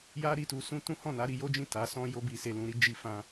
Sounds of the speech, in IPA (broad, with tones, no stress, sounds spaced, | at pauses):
j a˦ ɾ i˦˨ t u˧ s ũ˦ t ũ˦ h ɔ̃˦˨ n a˨˦ ɾ i˧ j o˦ d͡ʒ ĩ˦˨ t a˨˦ s ɔ̃˧ j o˧ b i˨ s e˨ l ũ˨ ɾ i˨˦ d͡ʒ i˧ f ã˧